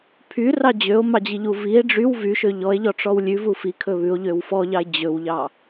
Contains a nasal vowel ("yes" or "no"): no